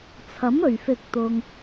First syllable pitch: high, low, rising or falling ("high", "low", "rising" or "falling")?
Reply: rising